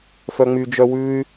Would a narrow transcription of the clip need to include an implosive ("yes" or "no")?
no